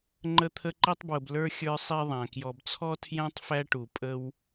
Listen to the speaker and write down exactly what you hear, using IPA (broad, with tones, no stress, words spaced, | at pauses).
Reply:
ŋ͡ǃə˦t̪ʰə˦ǃi˥tˤbwʊ˨b lə˞˥xʲə˞˦sˤi˦ ðˤæ̃˩kjɔ˨bt͡sʰɔ˥ tʰjæ̃˥tˤfæ˦ʈu˩ pʼə˦w